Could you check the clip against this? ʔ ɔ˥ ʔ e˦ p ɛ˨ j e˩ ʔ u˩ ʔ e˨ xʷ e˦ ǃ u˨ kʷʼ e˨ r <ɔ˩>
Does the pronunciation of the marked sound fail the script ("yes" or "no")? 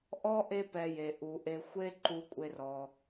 no